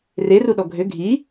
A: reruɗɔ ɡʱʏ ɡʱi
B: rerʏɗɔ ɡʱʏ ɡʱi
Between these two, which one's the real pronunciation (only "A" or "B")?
A